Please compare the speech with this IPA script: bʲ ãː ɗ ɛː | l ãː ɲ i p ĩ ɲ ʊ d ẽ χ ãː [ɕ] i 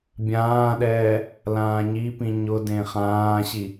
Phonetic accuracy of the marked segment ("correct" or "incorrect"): correct